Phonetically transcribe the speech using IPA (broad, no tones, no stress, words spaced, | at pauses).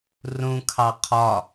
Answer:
rũkʰɑ qʰɒ